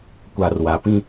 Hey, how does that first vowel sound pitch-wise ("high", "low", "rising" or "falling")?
low